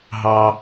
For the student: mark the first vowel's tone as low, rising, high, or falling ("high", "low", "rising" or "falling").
high